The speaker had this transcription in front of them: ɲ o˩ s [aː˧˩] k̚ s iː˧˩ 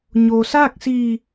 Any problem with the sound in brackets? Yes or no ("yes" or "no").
yes